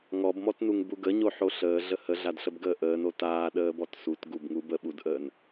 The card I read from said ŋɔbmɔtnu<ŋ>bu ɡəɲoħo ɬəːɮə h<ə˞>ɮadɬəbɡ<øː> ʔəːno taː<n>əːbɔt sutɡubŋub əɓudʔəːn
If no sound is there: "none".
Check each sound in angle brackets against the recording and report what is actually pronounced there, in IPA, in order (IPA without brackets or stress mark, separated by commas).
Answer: ŋ, ə, əː, ɗ